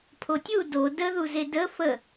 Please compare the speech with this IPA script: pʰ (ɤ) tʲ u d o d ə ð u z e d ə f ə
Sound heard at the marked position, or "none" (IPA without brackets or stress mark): o